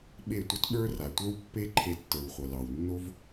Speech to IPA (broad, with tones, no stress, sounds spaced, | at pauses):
ɓ e˦˨ tʷ ʌ˦ t ɓ ə˞˦ r a˨ tʷ ə˞˦ w pː e˦ ǃʰ e˧ tː ə˞˨ w χʷ ʌ˨ l ɑ˨ w nː o˦ v